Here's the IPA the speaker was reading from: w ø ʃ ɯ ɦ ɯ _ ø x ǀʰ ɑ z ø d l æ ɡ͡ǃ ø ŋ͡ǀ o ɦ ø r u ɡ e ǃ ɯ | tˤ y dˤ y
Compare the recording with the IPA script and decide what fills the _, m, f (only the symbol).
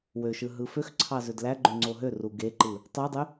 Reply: f